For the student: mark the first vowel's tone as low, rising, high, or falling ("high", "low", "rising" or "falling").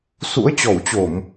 rising